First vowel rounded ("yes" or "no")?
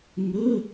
yes